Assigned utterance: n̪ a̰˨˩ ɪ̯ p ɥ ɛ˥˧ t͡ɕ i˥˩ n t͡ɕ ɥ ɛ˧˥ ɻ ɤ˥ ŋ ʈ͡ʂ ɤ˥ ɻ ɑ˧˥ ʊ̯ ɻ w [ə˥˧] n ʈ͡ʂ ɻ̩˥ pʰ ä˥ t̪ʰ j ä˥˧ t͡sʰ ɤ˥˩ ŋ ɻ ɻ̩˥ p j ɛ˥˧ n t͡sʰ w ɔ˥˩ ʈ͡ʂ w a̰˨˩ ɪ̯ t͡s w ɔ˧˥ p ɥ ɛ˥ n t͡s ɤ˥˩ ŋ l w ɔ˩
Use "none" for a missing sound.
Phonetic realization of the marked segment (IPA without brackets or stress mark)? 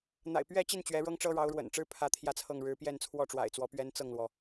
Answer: ə̰˨˩